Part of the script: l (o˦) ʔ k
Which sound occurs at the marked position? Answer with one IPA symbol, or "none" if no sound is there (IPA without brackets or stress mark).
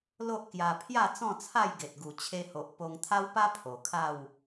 o˦